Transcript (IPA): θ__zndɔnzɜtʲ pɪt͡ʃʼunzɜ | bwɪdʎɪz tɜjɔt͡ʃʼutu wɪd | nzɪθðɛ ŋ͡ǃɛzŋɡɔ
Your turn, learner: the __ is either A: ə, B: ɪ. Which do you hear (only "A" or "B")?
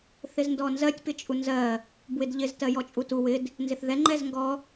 B